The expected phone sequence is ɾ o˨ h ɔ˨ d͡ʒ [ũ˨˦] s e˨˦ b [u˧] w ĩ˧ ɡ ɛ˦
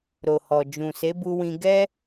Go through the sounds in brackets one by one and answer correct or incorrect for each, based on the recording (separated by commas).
incorrect, correct